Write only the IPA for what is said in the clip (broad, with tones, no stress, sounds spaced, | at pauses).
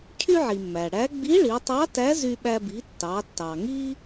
cʰ y˥ ʕ i˩ mː æ˩ ɽ æ˧˥ ɡ͡b i˧˥ ɭ i˩˧ tˤ ɑ˧˥ t æ˧˥ z y˧ ɓ æ˧ b i˩˧ tː ɑ˩˧ tː ɑ˩ ŋ i˥